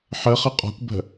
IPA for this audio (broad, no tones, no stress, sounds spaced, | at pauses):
ħ ə χ ə qʼ ɔ̤ kʷ b ə̤